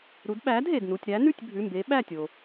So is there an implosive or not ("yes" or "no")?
yes